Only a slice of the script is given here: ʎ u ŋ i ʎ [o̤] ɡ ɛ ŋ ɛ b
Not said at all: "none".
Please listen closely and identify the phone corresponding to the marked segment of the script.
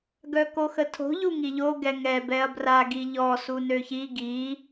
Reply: o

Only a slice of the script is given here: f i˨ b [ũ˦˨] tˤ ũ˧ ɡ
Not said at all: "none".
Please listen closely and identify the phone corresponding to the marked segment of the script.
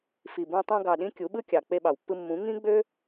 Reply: ũ˧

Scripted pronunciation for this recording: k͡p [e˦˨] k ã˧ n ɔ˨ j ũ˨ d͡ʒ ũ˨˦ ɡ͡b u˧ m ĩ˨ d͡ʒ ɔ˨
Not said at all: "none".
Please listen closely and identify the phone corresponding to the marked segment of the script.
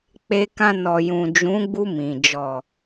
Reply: e˧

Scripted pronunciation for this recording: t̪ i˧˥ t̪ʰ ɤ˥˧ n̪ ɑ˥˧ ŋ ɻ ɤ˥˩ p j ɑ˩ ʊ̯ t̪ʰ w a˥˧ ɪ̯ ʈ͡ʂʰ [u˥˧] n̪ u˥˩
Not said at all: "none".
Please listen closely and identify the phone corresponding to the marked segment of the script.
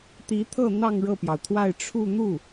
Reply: u˥˧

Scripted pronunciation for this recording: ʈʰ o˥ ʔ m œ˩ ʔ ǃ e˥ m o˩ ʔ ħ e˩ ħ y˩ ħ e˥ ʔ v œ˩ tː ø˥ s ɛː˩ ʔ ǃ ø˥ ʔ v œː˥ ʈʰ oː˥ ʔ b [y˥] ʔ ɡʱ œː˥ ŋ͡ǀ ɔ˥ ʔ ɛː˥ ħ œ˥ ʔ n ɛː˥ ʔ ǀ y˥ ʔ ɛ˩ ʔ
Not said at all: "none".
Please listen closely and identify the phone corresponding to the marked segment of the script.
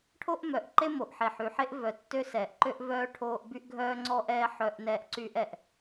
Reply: y˥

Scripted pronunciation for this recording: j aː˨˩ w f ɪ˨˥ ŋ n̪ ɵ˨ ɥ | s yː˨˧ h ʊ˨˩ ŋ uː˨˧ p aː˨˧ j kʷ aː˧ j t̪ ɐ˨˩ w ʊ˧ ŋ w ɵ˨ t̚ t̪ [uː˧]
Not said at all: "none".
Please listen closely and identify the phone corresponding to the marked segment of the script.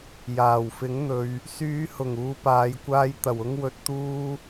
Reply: uː˧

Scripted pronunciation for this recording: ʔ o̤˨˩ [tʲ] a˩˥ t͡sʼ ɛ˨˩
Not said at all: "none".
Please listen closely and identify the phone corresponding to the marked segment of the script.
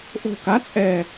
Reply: k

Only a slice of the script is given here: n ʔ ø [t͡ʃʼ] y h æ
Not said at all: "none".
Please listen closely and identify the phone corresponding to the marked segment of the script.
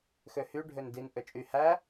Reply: t͡ʃʼ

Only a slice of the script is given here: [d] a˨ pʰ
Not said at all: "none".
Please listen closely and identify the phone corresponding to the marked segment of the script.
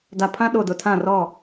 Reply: d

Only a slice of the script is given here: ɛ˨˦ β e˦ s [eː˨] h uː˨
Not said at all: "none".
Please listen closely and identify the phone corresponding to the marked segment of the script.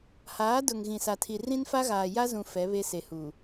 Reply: e˨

